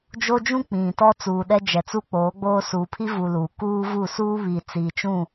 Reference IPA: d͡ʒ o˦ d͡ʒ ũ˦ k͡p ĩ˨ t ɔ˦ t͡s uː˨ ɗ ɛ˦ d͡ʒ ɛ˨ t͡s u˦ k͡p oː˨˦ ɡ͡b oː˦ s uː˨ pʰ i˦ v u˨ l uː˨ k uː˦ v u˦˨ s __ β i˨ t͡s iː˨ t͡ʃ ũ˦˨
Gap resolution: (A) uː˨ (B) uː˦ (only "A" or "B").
B